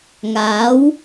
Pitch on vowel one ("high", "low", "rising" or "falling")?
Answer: rising